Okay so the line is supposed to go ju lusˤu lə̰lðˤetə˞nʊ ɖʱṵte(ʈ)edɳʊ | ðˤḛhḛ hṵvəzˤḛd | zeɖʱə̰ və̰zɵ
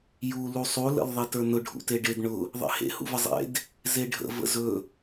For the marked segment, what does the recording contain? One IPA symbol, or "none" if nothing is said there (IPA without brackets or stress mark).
ɖ